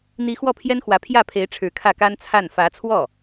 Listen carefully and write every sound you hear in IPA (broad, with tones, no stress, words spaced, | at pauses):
n̪i˧˥ xwɔ˥˩pʰjɛ˥nxwä˧˥ pʰjä˥˩pʰe˧˥ɪ̯ ʈ͡ʂʰɻ̩˧˥kʰä˥˩ka˥nt͡sʰa˥˩n fä˧˥t͡sʰwɔ˥˩